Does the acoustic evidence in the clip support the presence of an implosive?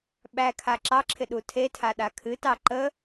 yes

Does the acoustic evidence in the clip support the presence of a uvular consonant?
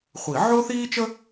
yes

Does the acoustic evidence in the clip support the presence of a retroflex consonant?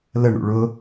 yes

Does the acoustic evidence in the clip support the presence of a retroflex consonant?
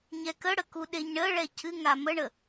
yes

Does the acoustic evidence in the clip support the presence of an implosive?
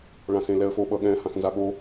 yes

